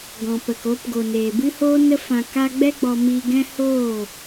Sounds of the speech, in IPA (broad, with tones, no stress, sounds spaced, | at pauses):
ɡ ɔ̃˨ p ə˨ k o˧ p ɡ o˨ n eː˨ b ɨ˦ h oː˦ n ə˦ f ã˧ k a˦ ɡ͡b ɛ˦ ɡ͡b ɔ˧ m iː˧ ɡ ɛ̃˦ h oː˦˨